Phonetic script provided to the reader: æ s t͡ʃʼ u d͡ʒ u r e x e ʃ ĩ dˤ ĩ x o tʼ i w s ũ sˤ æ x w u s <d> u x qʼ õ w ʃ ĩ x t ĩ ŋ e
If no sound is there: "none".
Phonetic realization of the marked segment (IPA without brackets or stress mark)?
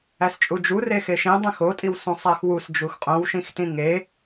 d͡ʒ